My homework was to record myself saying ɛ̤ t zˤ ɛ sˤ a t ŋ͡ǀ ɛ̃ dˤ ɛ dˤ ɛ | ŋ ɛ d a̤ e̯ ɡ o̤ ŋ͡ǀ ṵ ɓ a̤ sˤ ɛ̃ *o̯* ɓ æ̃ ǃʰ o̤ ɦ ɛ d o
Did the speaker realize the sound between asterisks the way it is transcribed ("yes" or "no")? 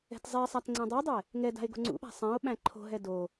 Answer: yes